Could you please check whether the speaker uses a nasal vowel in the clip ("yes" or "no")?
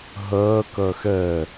no